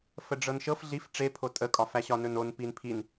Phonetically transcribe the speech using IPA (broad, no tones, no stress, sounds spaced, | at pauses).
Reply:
f ə ɖ͡ʐ ɤ n ʃ ɤ f ɮ i f ʈ͡ʂ e pʰ o tʼ ə kʼ ɒ f æ ɕ ɒ n ɵ n o n p i n pʰ i n